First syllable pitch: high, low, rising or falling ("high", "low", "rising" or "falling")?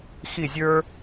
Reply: falling